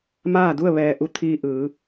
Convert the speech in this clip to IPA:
maː˥˨du˥˨ə̯ ʋɛː˧ ʔu˧˥ t̪ʰiː˧ ʔɯː˩˧

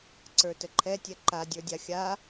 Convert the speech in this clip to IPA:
ǀə˞təǃʰɛtʲɛ ǃadʲə˞dʲa xʲa

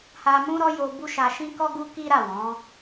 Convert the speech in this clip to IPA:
ha˧mũ˦ɾɔ˦ jo˧bu˦ʃa˧ ʃĩ˦kɔ˦ ɡu˦ki˦ɾa˦˨ wɔ̃˨˦

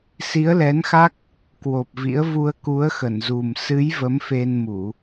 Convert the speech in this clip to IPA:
si˨˦ə̯lɛ˨˦nxa˦˥k̚ | kwo˨˩p̚vḭ˧˥ə̯ vu˧ə̯ku˨˦ə̯xə˧˩nzu˨˩m sɨ˨˦j və˨˦mfe˧nmu˧˩˨

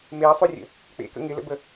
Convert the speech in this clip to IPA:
meə̯sˤorʲə̰ | k͡pḛkə̰ ŋɪlə̰bə

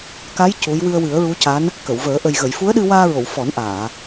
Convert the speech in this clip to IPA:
ka˧˥j cu˧˥j wɨ˧ə̯wɨ˨˩˦ə̯ɹu˧˥ca˧˥n | kə˨˩˨wvəː˨˩˦ ʔə˨˩jɣə˨˩˨jfu˧˥ə̯ɗɨ˧ waː˧ɹo˨˩˨w fɔ˨˩˦nʔaː˨˩˨

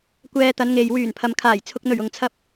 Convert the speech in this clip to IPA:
kʷɛː˧t̪ɐ˨˧nŋe˨j wyː˨˩npʰɐ˨mkʰaː˨˩j t͡sʰʊ˨k̚n̪ɵ˨˩ɥ ʊ˨ŋt͡sʰɐ˧p̚

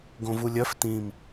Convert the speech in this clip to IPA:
ɡõvulʲœf tĩm

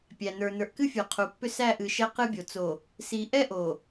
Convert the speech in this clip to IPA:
pʲæ˨nə˞˨ nə˞˨ʔkɨ˦fʲə˞˨ qʰu˨pːʏ˦ sæ˦˨ʔɨ˨ ʃɛ˦qɨ˦bʲo˨ t͡so˨ | si˨ ʔɛ˦ ʔo˨

